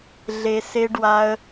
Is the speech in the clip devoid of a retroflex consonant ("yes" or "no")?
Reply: no